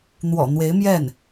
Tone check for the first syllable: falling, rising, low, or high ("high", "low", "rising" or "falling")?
low